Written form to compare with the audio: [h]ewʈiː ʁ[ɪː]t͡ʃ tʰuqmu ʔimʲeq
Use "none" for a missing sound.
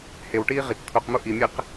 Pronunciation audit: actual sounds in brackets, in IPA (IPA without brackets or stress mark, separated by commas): h, ɪ